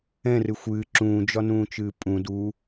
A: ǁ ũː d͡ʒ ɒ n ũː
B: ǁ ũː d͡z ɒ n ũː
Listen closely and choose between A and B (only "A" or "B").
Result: A